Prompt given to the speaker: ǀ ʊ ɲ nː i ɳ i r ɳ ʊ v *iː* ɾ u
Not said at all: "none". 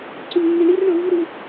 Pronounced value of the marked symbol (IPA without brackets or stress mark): i